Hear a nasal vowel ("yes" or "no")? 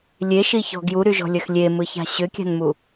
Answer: no